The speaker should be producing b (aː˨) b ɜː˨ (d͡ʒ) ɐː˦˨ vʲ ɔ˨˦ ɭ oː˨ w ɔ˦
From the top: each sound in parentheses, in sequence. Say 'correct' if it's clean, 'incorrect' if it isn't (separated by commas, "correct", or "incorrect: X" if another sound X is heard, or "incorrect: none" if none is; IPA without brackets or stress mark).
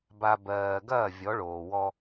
incorrect: a˨, incorrect: ɡ